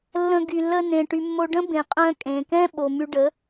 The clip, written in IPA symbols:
lː ə̃˧ ɡ y˨ lː ə˧ n ẽ˨ ʈ y˨ mː o˧ ɖ ə̃˦ b ẽ˨ qʼ œ̃˧ kʼ ẽ˨ k ɛ̃˦ ɓ o˨ m y˧ ɖ ə˨˦

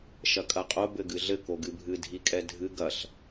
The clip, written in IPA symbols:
ʃ ɐ kʼ ɐ qʼ o b ɘ ɡ ɨ ɮ ɘ k o ɡ ɨ bʱ ɨ dʱ i kʼ ɛ dʱ ɨ ɡ ɐ ɬ

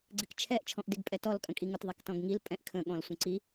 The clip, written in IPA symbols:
ɡ͡ǀ ɪ k t͡ʃʰ ɛ ʔ t͡ʃʰ ɔ̃ ʔ d ɪ ɡ pʼ ɛ t ɔ l kʼ ə̃ kʼ i ŋ ʊ t ðˤ ɛ k t ɔ̃ ɡ ŋ i l pʼ ɛ̃ ʔ kʰ ə̃ ɠ ɔ̃ l sʷ ə̃ ǀ i

